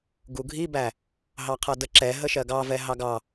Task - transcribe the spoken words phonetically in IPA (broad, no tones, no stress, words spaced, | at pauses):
ɡuɡʱibæ | ɦɑqʰʌdəǁɛ ɦəʃɜɡɑvɛ ɦɑɡɑ